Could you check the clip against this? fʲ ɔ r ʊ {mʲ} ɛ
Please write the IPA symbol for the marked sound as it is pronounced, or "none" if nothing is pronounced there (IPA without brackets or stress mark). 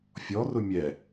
mʲ